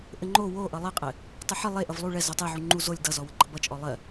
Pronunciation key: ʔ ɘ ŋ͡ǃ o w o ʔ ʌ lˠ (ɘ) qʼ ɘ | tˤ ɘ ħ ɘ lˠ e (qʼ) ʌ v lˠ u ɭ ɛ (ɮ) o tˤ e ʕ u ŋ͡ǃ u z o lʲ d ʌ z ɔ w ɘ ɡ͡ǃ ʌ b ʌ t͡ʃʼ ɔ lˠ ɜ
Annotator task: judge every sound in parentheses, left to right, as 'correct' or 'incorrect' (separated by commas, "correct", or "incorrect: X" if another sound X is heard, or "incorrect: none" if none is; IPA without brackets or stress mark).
correct, incorrect: ʔ, incorrect: z